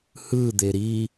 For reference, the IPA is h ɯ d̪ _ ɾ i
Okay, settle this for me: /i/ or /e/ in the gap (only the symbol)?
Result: e